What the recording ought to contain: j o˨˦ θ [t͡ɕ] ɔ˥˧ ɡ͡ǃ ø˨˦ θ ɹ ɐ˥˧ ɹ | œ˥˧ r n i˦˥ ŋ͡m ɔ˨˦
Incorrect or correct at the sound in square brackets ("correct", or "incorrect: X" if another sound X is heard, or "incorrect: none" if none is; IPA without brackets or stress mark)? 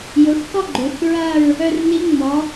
incorrect: k